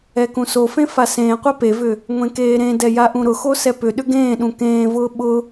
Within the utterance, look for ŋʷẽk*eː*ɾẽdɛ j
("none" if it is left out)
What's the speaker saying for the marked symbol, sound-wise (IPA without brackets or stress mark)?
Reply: eː